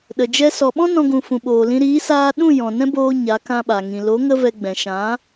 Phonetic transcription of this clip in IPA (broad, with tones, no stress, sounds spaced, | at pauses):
ɗ ə˨ d͡ʒ ɛ˧ s ɔ˨ ɓ ɔ̃˦ n ɔ̃˧ ɡ ũ˨ f ũ˨ ɓ oː˨ l ĩ˧ ɾ iː˨˦ s aː˧ ɗ ũ˦˨ j ɔ̃˨ n ɛ̃˦ b oː˧ ɲ a˨˦ k ã˧ ɓ a˨ ŋ ĩ˨ l o˨˦ ŋ ə˦ v ɛ˧ ɡ͡b ɛ̃˨ ʃ ã˨˦